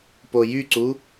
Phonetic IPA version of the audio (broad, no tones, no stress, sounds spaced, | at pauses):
p o j y ǀ u